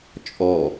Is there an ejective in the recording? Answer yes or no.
yes